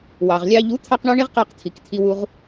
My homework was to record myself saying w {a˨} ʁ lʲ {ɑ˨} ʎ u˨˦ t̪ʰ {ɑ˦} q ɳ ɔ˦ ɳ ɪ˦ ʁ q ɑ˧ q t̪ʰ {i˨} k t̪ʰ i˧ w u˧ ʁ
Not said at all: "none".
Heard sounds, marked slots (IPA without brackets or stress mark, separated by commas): ɑ˨, ɑ˧, ɑ˦, i˨